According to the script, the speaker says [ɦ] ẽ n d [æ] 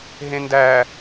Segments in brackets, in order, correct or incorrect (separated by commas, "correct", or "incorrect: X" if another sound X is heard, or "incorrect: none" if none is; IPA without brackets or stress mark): correct, correct